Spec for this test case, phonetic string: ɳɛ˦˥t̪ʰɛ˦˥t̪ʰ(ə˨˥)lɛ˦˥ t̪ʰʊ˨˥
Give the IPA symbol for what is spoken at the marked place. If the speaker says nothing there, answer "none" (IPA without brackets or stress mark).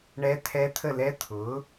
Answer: ə˥˧